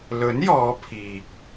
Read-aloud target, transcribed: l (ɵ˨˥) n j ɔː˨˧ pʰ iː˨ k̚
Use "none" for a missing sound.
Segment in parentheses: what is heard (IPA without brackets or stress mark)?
ɵ˨˥